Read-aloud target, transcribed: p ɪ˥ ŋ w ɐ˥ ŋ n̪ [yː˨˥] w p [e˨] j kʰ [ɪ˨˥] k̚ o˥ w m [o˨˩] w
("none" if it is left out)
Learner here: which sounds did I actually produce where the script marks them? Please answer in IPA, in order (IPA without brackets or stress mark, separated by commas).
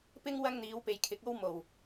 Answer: iː˨˥, e˨, ɪ˨˥, o˨˩